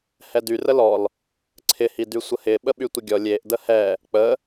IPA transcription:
h ɛ d y r ə l ɔ l | ǀʰ ɪ h i d y sʷ ə h ɪ ɓ ə ɓ y tʷ ɪ ɡʲ ɔ lʲ e ʔ d ə h ɛ | k͡p ə

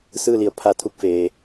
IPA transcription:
s ɯː˥˨ l i˩˧ ə̯ pʰ a˧ t̪ʰ u˧ k̚ f eː˩

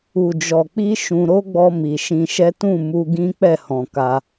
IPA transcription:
u˨ d͡ʒ ɔ˨ k͡p i˧ ʃ ũ˧ ɾ o˦ ɡ͡b ɔ˧ m i˨ ʃ ĩ˧ ʃ ɛ˦ t ũ˦˨ m u˧ ɡ ĩ˦ k͡p ɛ˦˨ h ɔ̃˨ k a˧

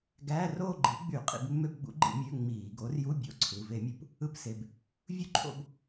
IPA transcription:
ɡ æː˧˥˧ r oː˥˧ ɡ͡ǃ i˩˥ ɡ͡b y˧˩˧ qʼ ḭ˧˩˧ b mː ø˧˥˧ b ɡ͡b ṵ˩˥ ɡ͡ǃ ḭ˧˩˧ mʲ ø˧˥˧ ŋ͡m iː˧˩˧ ɡ o˩˥ r j u˧˥˧ bʲ o̰˧˥˧ ǀʰ ɯ˩˧˩ v e˧˩˧ mʲ u˧˩˧ p | ɯ˧˥˧ p s e˩˧˩ b | vʲ u˥˧ ǃʰ o̰˥˧ b

